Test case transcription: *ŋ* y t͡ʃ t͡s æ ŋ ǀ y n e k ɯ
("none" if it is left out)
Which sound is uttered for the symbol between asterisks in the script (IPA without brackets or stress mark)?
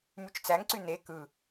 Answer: m